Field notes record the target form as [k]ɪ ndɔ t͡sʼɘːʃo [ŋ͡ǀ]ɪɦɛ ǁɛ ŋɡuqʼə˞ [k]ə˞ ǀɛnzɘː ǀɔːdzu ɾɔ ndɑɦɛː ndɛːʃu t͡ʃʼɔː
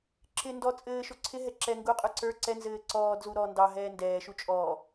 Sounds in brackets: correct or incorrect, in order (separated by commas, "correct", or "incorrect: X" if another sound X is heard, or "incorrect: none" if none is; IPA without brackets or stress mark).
incorrect: ǁ, incorrect: ǀʰ, incorrect: ǀ